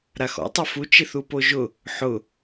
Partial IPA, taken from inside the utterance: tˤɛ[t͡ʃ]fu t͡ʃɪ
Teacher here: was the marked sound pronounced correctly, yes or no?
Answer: no